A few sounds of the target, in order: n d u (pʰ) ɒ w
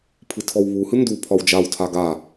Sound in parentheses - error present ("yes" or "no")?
no